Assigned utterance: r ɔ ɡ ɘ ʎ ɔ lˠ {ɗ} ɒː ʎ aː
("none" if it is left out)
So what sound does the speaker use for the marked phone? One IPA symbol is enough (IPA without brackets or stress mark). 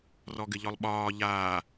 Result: ɓ